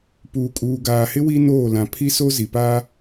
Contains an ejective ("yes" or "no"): yes